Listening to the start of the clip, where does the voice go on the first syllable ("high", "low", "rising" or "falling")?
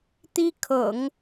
high